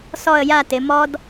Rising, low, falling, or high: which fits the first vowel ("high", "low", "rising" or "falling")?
falling